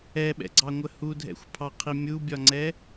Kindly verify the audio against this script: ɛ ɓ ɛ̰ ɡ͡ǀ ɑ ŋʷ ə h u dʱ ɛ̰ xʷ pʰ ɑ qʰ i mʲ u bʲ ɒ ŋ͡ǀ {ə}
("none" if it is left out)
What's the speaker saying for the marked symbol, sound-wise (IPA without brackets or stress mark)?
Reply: ɛ